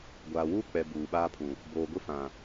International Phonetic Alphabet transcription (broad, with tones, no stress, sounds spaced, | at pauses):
ɡʷ aː˨ w uː˦ k͡p ɛ˨ b uː˨ ɓ aː˦ pʰ ũ˨ | b oː˨ ɡʷ ɪ˦ f ã˨